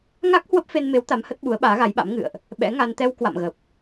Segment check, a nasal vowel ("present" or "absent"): absent